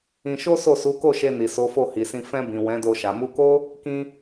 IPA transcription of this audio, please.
ĩ˧ ʃ o˦ s o˦˨ s u˨˦ k o˦˨ ʃ e˧ n i˨ s o˨˦ f o˦˨ h i˨ s ĩ˧ f ɛ̃˧ b ĩ˨ w ɛ̃˨˦ d o˧ ʃ a˨ m u˧ k o˦ | k ĩ˦

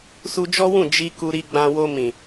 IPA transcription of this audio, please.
s u˧ d͡ʒ ɔ˦ w ũ˦˨ d͡ʒ i˧ k u˧ ɾ i˧ ɡ͡b ã˧ w o˧ m ĩ˨

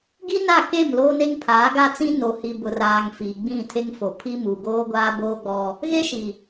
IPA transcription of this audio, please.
ɡ i˦ n a˦˨ k e˦˨ m l oː˦ n e˦ ŋ pʰ aː˨˦ ɡ a˦ t͡s ĩ˦ n o˨ h i˨ b ʊ˨ r aː˨ ŋ f iː˨ ɡ͡b ĩ˦˨ tʰ e˦ ŋ f o˨ pʰ i˦ m u˨ ɡ oː˦ ɡʷ aː˦ b oː˦ ɡ͡b ɔ˦ | ɣ e˦ ʃ i˨

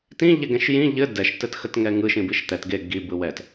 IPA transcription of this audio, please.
t ĩ ʎ ɛ ɡ ɛ̃ ʃ j ĩ ʎ ɘ d ɛ ʃ t ɘ t x ə t ŋ ɛ ŋ ɯ ʃ ĩ b i ʃ t̪ ɛ t ɡ e ɡ i b ɯ w ɛ t

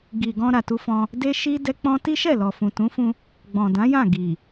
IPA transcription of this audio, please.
ɡ i˨ ɡ ɔ̃˧ ɾ a˨ t u˧ f ɔ̃˧ | d e˦ ʃ i˦ d ɛ˦ k͡p ɔ̃˦ t i˦ ʃ ɛ˦˨ l ɔ˨ f ũ˨ t ũ˨˦ f ũ˧ | ɡ͡b ɔ̃˨ d ã˨˦ j ã˦˨ ɡ i˨

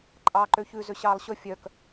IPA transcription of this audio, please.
ǃʼ ɑː ǃ ø ç ʉ z ø ɕ ɑː lˠ ɕ ɵ fʲ œ k

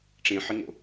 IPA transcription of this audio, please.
ʈ͡ʂ ẽ ħ ɪ ŋ o̰

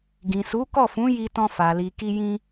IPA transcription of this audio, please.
ɡ ĩ˨ s u˨˦ k ɔ˦˨ f ũ˨˦ j i˧ t ɔ̃˧ f a˨ l i˨ k i˧ j ĩ˧

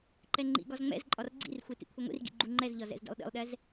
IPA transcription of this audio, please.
ǃ ɛ ŋ͡ǃ ḭ ɡ ɒ z ŋ͡m ɛ̰ z ǃʼ ɒ r ɡ͡ǀ ḭ r xʷ i t ḭ kʷʰ i ŋʷ ḭ r ɡ ḭ ɡ͡ǃ u ŋ͡ǃ ɛ z ʎ ɒ z ɛ̰ z d ḭ lˠ ɗ ḭ lˠ ɗ ɛ z

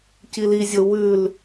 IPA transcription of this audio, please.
c i l i zʲ o w ʉ l

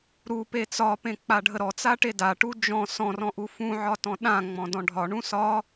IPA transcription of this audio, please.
ɾ u p e t͡s ɒ p ẽ k͡p a ɖʱ ə ɾ ɔ t͡s a ʈ e d a ʈ u d͡ʒ ɔ̃ s ɔ̃ r ɔ̃ ʔ u f ũ ʕ ɒ t ɔ̃ ɗ ã ŋ͡m ɔ̃ d ɔ̃ ɖʱ ɒ ɳ ũ s ɒ

